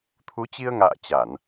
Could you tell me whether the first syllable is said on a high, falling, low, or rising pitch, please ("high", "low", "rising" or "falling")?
rising